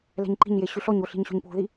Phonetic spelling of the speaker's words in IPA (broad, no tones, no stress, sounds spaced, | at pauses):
l ɛ̤ ɲ ǃ i̤ ɲ j e ɕ y ɬ ɔ ɲ o ɬ i̤ ɲ ɕ o̤ ɲ p o̤ ð i